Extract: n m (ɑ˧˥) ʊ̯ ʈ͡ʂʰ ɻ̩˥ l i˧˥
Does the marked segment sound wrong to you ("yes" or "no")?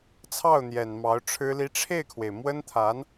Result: no